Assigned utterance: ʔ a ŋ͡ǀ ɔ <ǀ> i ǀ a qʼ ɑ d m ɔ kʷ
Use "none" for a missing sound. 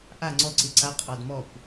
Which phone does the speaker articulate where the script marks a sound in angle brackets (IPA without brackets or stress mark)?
ǀ